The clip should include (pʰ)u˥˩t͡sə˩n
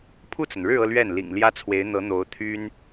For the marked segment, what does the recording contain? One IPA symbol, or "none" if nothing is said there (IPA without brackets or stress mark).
pʰ